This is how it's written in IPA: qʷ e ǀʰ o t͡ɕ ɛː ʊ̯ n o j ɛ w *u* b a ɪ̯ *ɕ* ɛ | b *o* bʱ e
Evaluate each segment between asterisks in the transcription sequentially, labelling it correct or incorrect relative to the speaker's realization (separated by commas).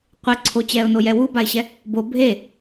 correct, correct, correct